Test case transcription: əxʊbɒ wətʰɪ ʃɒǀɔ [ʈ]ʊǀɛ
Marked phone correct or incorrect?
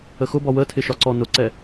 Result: incorrect